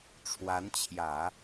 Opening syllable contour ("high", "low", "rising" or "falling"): rising